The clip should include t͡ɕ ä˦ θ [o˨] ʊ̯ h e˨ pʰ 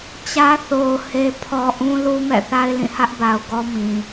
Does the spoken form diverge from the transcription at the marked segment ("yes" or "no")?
no